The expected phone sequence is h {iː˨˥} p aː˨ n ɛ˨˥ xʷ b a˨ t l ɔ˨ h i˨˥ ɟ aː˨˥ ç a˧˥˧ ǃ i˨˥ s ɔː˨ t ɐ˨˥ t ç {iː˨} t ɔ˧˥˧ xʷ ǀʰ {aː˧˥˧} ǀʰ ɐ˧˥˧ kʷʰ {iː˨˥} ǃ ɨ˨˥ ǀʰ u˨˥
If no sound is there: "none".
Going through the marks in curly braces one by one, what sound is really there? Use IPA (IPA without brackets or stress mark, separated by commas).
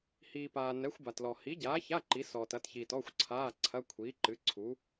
iː˨, iː˨, aː˧˥˧, iː˨˥